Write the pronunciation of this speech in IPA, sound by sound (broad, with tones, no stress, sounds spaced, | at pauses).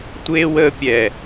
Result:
tʷ eː˥ w əː˥ pʲ ɛː˧˩